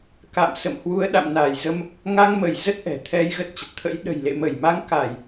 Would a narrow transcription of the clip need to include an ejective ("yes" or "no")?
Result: no